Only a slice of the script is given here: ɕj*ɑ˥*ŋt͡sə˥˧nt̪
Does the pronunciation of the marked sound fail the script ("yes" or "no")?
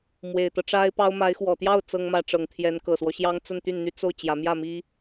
no